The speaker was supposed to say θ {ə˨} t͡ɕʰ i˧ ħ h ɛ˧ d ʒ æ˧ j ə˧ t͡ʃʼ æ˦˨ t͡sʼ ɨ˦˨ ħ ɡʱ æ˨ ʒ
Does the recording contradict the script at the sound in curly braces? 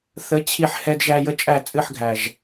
yes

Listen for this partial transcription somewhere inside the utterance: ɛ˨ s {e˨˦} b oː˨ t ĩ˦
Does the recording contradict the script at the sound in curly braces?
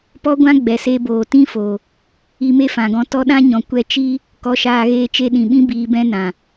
yes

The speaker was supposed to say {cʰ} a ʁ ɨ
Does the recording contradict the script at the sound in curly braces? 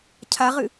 no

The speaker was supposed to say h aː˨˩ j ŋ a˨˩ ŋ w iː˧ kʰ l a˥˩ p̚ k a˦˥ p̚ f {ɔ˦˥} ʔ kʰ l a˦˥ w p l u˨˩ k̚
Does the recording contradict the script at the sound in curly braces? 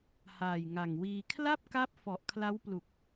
yes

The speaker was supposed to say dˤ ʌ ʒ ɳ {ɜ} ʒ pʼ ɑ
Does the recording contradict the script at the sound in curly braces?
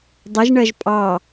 no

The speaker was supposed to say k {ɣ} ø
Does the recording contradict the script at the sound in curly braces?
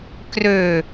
yes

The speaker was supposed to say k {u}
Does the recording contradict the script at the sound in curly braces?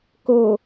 yes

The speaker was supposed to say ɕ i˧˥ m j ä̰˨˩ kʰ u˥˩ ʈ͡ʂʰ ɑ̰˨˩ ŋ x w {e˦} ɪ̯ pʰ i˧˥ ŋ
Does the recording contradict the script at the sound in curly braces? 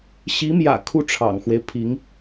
no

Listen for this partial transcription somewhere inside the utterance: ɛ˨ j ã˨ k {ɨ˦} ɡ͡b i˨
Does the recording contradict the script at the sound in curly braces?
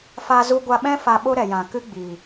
no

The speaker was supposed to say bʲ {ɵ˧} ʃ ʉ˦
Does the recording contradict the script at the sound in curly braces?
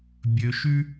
no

